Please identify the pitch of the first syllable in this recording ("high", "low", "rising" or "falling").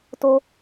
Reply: high